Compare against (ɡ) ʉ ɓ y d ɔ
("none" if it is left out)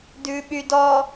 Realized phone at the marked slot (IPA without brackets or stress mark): d